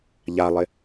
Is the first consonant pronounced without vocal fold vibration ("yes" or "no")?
no